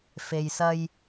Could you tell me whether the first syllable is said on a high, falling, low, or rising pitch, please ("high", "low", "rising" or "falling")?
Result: low